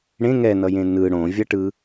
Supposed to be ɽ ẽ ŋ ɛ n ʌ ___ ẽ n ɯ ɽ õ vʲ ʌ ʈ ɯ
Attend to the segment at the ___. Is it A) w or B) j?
B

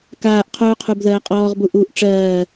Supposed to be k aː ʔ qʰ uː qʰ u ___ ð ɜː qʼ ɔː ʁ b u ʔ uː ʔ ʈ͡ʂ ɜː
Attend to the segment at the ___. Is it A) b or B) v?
A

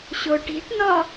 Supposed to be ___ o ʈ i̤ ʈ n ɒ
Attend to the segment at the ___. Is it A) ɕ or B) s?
A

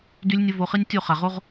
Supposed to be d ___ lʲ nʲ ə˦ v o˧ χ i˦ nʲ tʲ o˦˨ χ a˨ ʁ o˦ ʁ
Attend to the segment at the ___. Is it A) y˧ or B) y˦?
B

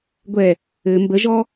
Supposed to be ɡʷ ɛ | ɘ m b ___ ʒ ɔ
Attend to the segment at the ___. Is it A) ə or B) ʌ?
A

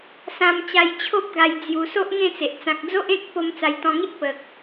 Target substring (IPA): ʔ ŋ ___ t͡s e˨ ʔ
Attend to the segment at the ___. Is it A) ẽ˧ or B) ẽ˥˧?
B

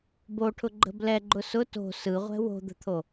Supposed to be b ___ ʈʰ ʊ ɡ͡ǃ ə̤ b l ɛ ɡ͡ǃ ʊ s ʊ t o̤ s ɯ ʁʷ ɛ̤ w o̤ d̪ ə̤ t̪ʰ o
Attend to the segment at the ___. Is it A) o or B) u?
A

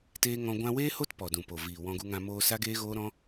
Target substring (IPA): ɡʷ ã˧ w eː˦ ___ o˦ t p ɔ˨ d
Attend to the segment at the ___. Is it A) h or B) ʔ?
A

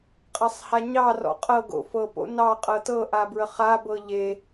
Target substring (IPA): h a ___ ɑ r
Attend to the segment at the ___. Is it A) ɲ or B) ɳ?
A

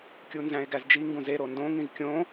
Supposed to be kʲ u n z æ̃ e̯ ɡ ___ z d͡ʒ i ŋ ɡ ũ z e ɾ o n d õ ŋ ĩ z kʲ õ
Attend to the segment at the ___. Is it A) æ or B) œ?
A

